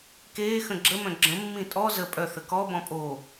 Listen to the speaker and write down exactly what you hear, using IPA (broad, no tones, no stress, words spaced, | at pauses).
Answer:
keː xə̃ɡ͡ǁəmœ̃ ɡ͡ǁə̃mːĩ tʼɔ zə pʼœθə kɔbɔ̃ pʼo